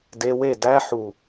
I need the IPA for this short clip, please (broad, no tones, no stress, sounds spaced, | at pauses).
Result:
d e w e d æ ħ u